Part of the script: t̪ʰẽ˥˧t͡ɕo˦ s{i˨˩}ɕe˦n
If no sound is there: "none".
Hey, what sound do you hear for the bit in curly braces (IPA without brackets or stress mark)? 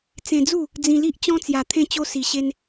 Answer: i˧